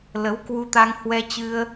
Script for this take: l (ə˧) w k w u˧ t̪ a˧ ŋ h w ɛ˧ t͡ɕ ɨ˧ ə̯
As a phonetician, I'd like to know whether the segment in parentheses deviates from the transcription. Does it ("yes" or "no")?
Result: yes